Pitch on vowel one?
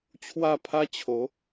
falling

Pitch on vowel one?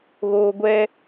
high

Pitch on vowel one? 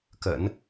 low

